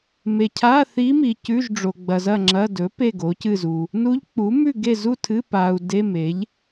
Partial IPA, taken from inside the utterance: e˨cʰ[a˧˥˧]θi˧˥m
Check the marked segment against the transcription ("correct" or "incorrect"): correct